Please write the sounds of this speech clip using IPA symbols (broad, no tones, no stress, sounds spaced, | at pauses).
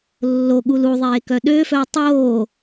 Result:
lː o ɠ u l u ðˤ eː k œ ɗ ø f œ ɐ̯ tˤ oː